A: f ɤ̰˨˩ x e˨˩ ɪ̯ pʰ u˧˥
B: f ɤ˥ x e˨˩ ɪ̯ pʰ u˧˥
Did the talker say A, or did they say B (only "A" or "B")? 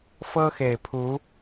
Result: B